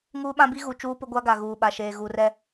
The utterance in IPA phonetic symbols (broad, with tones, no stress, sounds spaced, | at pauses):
ŋ uː˦ ɓ ã˦ b i˦ ɣ u˨ t͡ʃ uː˦ p ʊ˦ ɡʷ a˦ ɡ a˨ ɣ uː˨ ɓ a˨ ʃ eː˨ ɣ u˨ r ɛ˦